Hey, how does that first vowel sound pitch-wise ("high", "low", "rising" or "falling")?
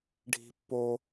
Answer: high